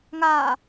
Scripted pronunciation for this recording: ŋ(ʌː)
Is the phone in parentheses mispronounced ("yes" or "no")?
yes